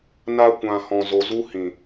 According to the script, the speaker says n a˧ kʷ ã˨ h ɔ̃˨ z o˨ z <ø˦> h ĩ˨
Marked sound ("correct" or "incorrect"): incorrect